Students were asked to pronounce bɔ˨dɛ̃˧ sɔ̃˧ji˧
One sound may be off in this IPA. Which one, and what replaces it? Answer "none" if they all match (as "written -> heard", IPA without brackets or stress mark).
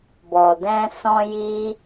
none